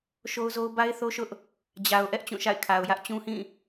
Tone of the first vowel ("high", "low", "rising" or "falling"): high